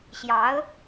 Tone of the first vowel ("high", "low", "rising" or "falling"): rising